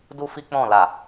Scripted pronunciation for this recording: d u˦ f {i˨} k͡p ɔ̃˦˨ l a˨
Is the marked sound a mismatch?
yes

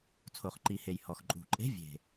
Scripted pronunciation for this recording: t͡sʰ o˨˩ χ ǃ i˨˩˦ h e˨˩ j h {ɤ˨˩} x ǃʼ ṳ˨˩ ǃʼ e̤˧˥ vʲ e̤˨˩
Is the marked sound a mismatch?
yes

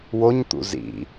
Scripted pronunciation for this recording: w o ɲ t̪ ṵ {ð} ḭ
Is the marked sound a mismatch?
yes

